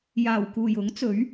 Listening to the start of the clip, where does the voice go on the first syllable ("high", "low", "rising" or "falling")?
low